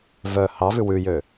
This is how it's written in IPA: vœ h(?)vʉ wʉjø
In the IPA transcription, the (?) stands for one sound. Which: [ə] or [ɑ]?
ɑ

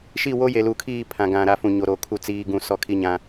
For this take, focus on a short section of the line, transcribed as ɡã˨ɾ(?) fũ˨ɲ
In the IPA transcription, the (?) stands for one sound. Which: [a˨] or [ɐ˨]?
a˨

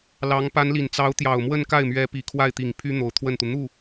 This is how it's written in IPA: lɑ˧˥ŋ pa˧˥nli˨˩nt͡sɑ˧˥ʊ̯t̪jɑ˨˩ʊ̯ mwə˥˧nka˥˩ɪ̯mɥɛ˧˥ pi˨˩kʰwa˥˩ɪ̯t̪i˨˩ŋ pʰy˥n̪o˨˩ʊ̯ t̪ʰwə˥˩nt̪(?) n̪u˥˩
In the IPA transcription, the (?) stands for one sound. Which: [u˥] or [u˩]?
u˩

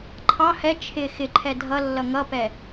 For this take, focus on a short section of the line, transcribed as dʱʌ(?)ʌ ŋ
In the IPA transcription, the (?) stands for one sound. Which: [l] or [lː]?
lː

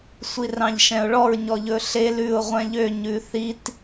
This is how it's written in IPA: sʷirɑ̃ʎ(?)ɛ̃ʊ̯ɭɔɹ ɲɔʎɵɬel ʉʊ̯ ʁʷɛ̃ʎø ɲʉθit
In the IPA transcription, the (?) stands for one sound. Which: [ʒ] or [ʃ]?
ʃ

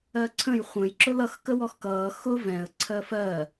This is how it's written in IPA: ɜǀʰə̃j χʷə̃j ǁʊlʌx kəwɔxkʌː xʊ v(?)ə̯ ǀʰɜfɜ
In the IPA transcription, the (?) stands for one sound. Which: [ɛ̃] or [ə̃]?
ɛ̃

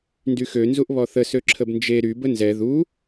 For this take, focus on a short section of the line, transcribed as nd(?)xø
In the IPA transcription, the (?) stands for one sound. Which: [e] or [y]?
y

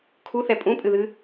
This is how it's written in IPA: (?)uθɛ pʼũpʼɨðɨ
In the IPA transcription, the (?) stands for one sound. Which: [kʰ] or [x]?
kʰ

